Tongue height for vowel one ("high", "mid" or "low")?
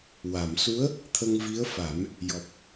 low